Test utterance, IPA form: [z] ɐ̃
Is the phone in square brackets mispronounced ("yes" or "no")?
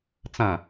yes